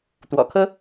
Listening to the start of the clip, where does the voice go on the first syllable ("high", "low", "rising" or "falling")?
low